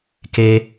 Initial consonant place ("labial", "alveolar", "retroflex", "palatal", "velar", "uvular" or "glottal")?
velar